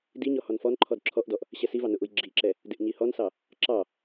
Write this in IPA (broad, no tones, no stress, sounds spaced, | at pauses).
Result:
d i ɲ ɔ h ɔ n f ɔ n ǃʰ ɔ d ǁʰ ɔ ʔ d ɔ ʔ | ɕ ɛ s i v ɑ n ʊ ʔ u j ɡ͡ǁ i ǁ ɛ | d ɪ ʔ ɲ i h ɔ n s ɑ | ǁ ɑ